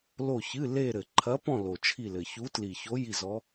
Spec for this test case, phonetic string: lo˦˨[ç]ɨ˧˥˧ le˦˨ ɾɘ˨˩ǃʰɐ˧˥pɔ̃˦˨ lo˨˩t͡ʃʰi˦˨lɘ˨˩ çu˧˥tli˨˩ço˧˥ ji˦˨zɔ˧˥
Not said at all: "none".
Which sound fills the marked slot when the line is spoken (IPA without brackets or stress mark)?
ç